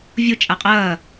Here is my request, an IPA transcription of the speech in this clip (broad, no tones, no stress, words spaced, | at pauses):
vʲo t͡ʃʼaqʼɐː